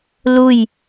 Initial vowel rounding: rounded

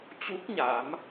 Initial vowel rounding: rounded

